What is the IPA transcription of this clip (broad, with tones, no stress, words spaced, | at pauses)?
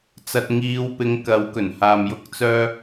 t͡sɐ˨t̚ŋiː˨˧wpɪ˨˥ŋ kɐ˨˥wkɵ˨˩n haː˨mjʊ˥k̚t͡sœː˥